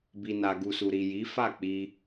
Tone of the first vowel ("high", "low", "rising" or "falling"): low